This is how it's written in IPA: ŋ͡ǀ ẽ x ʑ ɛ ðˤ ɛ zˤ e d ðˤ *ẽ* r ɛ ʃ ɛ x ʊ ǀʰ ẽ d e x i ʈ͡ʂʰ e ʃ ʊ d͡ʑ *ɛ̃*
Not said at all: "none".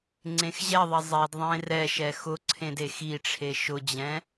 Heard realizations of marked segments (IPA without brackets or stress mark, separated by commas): ẽ, ɛ̃